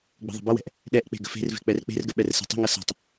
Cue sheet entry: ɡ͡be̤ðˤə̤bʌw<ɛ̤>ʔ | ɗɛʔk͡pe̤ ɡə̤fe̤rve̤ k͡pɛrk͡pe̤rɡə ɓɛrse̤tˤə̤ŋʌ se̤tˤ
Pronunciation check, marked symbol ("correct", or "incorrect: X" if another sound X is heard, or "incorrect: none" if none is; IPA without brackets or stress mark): correct